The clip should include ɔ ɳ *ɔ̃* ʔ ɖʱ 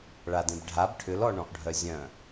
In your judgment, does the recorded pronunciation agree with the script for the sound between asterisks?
yes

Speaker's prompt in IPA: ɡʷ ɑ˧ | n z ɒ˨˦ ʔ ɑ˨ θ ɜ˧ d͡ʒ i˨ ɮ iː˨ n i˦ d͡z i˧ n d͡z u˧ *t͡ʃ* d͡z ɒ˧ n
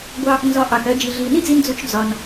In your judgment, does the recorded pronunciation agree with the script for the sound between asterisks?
yes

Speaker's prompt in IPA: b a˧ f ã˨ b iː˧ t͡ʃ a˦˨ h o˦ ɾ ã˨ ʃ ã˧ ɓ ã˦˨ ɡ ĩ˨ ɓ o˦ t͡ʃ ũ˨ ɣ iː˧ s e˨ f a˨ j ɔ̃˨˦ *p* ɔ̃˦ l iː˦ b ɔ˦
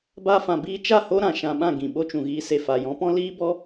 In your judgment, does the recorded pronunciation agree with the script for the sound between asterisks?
yes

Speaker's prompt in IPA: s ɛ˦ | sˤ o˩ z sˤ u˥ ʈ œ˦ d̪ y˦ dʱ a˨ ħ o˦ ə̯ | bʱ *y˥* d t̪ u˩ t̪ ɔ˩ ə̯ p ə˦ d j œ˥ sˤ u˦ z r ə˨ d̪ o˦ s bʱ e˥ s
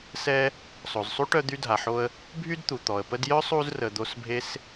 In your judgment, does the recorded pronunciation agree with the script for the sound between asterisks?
no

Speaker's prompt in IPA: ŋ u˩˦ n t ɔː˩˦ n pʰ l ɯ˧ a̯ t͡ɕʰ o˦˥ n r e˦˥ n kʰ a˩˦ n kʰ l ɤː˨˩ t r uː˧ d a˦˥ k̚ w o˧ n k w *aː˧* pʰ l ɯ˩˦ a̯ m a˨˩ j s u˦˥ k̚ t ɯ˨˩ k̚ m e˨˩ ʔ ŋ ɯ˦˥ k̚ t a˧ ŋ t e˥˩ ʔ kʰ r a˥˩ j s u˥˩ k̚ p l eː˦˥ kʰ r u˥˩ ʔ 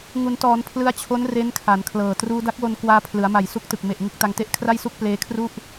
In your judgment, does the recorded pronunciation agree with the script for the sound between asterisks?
yes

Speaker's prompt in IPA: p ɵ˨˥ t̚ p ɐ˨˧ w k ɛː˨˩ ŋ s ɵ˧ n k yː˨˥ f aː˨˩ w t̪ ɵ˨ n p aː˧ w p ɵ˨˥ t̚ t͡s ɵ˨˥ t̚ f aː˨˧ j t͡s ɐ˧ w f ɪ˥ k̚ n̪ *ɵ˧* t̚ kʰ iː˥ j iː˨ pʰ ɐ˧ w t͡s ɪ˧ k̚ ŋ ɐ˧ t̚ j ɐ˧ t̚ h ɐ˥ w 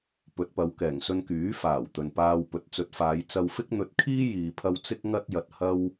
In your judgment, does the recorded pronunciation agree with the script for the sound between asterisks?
yes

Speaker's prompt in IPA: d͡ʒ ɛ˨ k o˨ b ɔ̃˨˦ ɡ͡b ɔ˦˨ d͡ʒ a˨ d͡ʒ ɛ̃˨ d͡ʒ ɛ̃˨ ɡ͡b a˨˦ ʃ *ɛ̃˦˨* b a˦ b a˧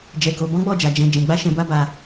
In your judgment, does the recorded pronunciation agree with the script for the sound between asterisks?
no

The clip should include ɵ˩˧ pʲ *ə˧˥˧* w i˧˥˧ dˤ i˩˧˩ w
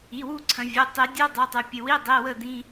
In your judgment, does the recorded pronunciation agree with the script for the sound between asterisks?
no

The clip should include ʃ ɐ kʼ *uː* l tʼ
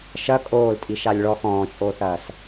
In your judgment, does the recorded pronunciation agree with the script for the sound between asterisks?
no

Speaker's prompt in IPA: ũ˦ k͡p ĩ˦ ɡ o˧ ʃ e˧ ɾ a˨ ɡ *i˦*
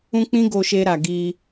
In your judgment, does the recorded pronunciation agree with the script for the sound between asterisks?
no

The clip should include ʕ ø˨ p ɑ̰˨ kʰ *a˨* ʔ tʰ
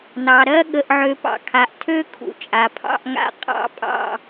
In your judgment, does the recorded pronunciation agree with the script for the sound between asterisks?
yes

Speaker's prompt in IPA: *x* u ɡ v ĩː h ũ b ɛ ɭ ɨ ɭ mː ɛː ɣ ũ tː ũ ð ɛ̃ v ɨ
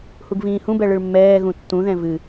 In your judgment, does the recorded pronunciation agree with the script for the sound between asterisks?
no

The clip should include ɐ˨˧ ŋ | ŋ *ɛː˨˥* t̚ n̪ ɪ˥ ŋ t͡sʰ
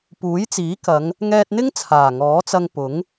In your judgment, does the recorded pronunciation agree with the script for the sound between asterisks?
no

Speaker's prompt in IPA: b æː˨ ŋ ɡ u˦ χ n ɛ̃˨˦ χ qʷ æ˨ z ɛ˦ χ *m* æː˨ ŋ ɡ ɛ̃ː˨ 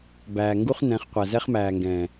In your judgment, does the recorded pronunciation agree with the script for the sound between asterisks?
yes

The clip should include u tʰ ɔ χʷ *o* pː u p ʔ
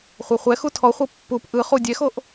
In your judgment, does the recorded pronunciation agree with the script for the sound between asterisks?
no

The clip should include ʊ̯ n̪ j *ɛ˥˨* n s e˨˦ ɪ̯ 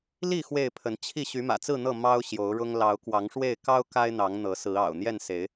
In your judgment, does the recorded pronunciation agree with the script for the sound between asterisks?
yes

